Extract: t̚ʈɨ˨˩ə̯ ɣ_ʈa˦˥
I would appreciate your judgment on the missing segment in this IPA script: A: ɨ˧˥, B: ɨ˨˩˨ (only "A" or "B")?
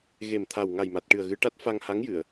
A